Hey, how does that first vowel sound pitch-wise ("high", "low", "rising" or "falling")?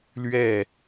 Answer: falling